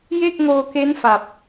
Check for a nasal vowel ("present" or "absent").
absent